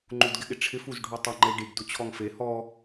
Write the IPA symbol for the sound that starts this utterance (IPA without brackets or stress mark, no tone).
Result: ŋ͡ǃ